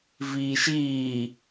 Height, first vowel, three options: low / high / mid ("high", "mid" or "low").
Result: high